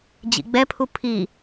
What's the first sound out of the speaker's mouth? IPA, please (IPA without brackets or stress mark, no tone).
d͡ʑ